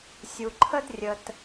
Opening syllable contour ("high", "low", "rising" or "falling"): low